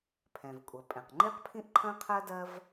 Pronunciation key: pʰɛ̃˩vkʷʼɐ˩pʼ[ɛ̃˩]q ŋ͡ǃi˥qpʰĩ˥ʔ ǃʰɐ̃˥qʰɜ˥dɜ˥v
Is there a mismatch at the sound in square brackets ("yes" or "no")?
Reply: no